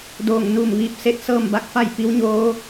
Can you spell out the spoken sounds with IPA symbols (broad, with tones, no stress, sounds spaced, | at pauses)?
d oː˧˩ ŋ n u˧˩ m ʋ iː˧˩ p̚ s e˥˨ t̚ s ɤː˥˨ m b a˧˥ k̚ f a˥˨ j p i˧˥ w ɲ oː˧˥